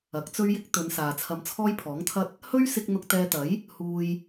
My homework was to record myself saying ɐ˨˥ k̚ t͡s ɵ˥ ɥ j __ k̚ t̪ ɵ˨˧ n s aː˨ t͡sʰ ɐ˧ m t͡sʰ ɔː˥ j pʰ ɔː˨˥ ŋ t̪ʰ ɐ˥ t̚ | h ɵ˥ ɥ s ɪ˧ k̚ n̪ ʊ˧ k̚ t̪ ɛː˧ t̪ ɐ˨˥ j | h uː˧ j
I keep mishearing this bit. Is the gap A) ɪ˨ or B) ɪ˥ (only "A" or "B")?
B